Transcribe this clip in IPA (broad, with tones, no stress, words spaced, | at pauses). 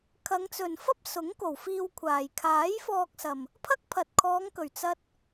kʰɐ˨˧ŋt͡sɵ˨n fɐ˥p̚ sʊ˨˥ŋ ko˨˩wfiː˧w kʷʰaː˨j kʰaː˨˥jfɔː˧k̚sɐ˨m | pʰɐ˥k̚pʰɐ˨t̚ kʰɔː˨˧ŋkɵ˨˩ɥ t͡sɐ˥t̚